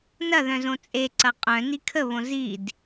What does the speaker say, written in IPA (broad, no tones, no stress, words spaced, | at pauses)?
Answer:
nɐðœ̃z õt͡sʼeǀɐ qʼœ̃ nikʰəβõ zid